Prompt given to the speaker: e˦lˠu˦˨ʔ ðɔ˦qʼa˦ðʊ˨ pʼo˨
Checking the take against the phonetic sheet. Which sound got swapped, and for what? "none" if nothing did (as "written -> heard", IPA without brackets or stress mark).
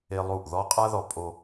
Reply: ʊ˨ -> ɔ˨